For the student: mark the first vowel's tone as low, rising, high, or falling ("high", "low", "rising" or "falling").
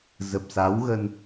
low